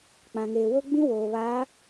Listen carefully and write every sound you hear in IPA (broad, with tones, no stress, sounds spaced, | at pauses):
k͡p ã˨ ŋ eː˨ w o˦ ɡ͡b ĩ˦ w oː˨ β a˨˦